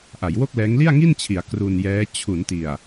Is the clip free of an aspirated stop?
no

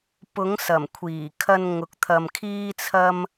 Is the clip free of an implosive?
yes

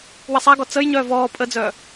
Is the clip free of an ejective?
no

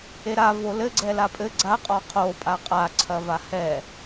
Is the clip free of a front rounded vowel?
yes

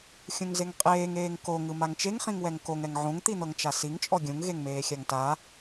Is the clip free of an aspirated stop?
yes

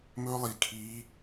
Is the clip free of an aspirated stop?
no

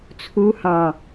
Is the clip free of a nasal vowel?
no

